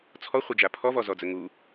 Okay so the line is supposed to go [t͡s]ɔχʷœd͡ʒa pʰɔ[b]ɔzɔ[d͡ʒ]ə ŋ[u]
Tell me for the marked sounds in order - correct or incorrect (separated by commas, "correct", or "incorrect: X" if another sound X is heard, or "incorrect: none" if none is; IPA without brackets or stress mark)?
incorrect: t͡sʰ, incorrect: v, incorrect: d͡z, correct